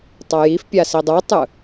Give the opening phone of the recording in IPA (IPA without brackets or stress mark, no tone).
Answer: tˤ